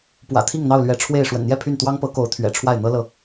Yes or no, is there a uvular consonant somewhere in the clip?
no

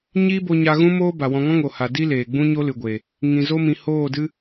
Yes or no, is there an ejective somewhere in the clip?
no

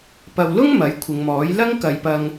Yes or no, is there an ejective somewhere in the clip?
no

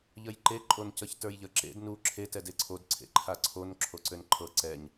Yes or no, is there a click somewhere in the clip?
yes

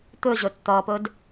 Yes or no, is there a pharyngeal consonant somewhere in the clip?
no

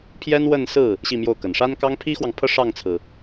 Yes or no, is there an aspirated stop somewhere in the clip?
yes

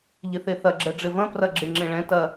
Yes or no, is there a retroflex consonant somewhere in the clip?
yes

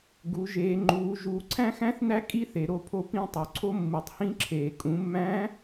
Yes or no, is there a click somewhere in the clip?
yes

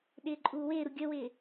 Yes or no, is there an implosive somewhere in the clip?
yes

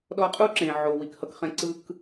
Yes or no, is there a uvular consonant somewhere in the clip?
yes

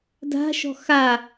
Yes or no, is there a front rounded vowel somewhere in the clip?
no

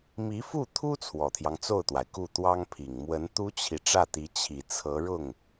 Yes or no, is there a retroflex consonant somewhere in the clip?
yes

